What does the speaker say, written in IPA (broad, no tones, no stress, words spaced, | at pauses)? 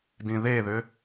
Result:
dĩðeðʏ